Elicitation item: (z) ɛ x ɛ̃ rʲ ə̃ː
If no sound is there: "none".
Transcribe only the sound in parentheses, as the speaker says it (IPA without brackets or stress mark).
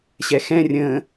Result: ɕ